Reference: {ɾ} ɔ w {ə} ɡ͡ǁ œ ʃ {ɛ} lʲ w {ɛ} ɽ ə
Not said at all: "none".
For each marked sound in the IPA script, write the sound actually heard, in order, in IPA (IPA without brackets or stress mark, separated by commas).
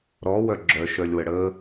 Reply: ɾ, œ, œ, ə